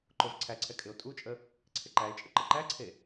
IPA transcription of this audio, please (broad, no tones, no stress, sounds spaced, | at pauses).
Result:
ǃ o v ǀʰ æ ǀʰ ɛ kʼ ɪ o̯ tʼ u t͡ʃʼ ə | ǀʰ ɪ ǃ æ e̯ t͡ʃʼ ə ǃ ɪ ǃ æ ǀʰ e